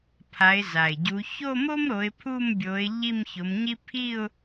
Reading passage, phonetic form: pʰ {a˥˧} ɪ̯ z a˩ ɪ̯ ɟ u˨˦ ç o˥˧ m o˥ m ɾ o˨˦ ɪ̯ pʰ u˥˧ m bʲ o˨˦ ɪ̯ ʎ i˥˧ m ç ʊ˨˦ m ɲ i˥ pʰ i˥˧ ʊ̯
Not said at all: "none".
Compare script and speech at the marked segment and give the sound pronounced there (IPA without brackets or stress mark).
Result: a˨˦